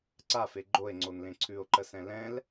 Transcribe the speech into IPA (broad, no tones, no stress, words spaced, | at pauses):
ǀafe ɡ͡ǃoe̯ŋ͡ǀonlẽ ǀʰʉo̯ǃəsɛ̃ lɛ̃l